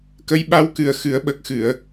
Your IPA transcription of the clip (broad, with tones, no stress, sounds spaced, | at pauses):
k ə˧˥ j ɓ a˧˥ w k ɨ˨˩ ə̯ x ɨ˨˩˦ ə̯ ɓ ə˨˩ k̚ x ɨ˨˩˨ ə̯